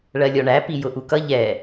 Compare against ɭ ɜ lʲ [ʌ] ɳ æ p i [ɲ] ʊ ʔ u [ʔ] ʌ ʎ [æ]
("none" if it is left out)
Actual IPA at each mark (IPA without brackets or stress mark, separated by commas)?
ɔ, j, k, ɛ